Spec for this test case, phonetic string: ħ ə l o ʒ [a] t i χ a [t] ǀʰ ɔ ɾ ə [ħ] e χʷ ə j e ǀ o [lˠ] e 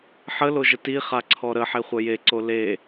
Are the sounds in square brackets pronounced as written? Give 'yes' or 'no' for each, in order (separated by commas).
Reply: no, no, yes, no